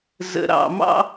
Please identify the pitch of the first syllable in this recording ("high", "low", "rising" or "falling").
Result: low